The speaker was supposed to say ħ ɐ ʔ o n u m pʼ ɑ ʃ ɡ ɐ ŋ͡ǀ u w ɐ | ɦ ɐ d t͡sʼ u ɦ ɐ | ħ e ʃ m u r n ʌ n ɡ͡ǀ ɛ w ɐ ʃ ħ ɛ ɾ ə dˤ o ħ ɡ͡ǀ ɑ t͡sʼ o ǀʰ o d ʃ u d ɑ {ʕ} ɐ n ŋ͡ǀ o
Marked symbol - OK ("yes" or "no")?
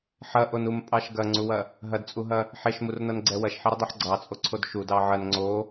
yes